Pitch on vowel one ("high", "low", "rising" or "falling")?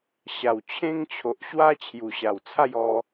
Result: low